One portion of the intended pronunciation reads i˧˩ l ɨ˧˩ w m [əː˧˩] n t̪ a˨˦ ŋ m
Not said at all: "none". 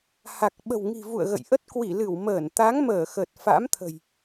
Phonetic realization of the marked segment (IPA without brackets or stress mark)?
əː˧˩